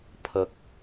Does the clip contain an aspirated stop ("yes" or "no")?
yes